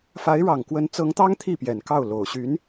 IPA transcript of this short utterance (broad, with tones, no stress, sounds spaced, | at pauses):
f a˧˥ ɪ̯ ɻ ɑ˨˩ ŋ k w ə˧˥ n t͡s ɤ˧˥ ŋ t̪ ɑ˥ ŋ t̪ʰ i˥˩ p j ɛ˨˩ n k ɑ˥˩ ʊ̯ l o˨˩ ʊ̯ ɕ y˧˥ n